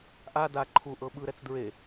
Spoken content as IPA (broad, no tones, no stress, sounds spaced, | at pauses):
ʔ a d a ǃʰ u ʔ ɤ ɓ ɯ ɾ ɛ t͡s d ɹ e